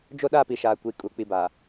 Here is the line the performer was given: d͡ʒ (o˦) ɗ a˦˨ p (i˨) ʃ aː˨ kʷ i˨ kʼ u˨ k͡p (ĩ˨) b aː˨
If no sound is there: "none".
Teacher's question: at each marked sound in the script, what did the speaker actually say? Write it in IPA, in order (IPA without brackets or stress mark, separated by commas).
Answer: o˦, i˨, i˨